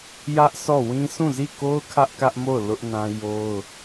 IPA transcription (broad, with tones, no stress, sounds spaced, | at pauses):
j ä˦ ʔ sʰ ɔ˦˨ w ĩ˦ s ũ˦˨ z i˦˨ k o˦ ʊ̯ kʰ ä˦ ʔ k ä˦ ʔ m o˦˨ ʊ̯ l ʊ˦ ʔ n ã˦ j o˦ ʊ̯